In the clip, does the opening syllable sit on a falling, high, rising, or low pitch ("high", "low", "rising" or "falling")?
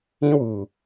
high